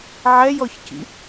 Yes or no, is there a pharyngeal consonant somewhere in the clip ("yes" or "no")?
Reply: yes